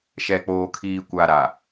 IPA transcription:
ʃ ɛ˨ k͡p oː˨ kʰ iː˨ kʷ a˨ ɾ a˨

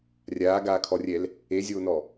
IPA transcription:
rʲ aː ɡ aː kʰ ɔ rʲ ɛ l | e zʲ oː n ɔ

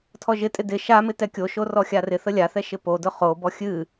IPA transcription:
tʰ ɔ ʒ ɪ tʼ ɪ d ɪ ʃ a m ɪ t ɛ kʲ o ʃ o r ɔ xʲ a r ɪ θ ə lʲ a θ ɛ ʃ ɪ p o d ʊ χ o b ɔ xʲ ɨ

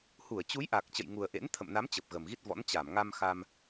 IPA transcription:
h u˧˩ ə̯ t͡ɕ u˨˦ j ʔ a˨˩ k̚ t͡ɕ ə̰˧˨ j ŋ u˨˩ ə̯ ʔ ḛ˧˥ n t̪ʰ ə̰˧˨ m n a˨˦ m t͡ɕ ə˨˩ p̚ ɣ ə˨˩ m ɣ i˦˥ t̚ v ɔ̰˧˥ n t͡ɕ a˧˩ m ŋ a˧ m x a˧ m

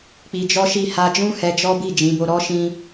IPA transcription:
k͡p i˧ d͡ʒ ɔ˦ ʃ i˦˨ h a˧ d͡ʒ ũ˦ h ɛ˧ d͡ʒ ɔ˦ b i˦˨ d͡ʒ ĩ˨˦ b o˧ ɾ ɔ˦ ʃ ĩ˦

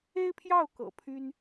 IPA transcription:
e˥ ɪ̯ pʰ j ɑ˥˩ ʊ̯ k ɤ̰˨˩ pʰ y˥ n

